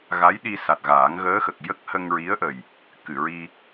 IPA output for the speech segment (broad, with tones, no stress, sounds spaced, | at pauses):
ɣ a˧˥ j ɗ i˧ s a˨˩ t̚ ɣ aː˨˩˦ ŋ ɣ əː˧˥ x ə˨˩ k̚ j ə˦˥ k̚ h ə˧ ŋ ɹ i˧˥ ə̯ ʔ ə˨˩ j | k ɨ˨˩˨ ɹ i˧